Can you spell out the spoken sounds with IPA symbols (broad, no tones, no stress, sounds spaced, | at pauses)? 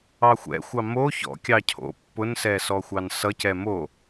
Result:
ɑ xʷ ɛ̰ xʷ ɑ m o ç ɔ̰ kʲ ɑ cʰ o̰ pː ʊ n s ɛ s ɔ xʷ ɑ n s ʌ c ɛ m o